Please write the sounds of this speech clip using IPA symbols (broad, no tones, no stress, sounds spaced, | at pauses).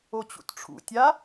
o t͡ɕ ṵ t ʈ͡ʂʰ ṵ tʲ a